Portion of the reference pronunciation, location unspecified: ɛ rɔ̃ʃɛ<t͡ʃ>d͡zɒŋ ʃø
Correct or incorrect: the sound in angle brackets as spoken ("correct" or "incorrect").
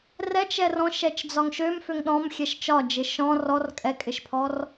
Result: correct